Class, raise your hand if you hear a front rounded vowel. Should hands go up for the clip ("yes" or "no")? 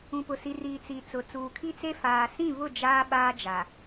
no